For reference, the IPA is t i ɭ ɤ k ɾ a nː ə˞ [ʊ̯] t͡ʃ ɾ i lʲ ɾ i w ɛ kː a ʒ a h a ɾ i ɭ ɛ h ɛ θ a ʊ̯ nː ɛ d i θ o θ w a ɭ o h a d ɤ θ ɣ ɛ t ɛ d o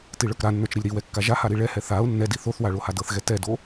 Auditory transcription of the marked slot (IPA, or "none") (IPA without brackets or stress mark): none